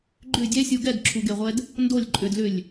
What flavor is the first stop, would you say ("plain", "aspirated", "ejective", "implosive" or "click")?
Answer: click